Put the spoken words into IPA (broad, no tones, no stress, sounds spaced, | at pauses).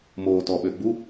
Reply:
m oː t ɔ ɓ ø ɡ͡b u